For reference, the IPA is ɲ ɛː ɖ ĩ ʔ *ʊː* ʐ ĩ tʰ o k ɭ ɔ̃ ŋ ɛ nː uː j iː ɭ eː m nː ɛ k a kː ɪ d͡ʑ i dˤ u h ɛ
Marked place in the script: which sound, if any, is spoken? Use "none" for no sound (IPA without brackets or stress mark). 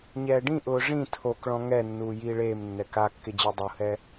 ʊː